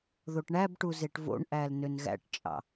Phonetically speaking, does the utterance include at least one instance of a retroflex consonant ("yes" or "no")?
yes